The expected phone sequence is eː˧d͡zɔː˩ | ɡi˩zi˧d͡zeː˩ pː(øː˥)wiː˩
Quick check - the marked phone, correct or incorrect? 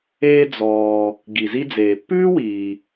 incorrect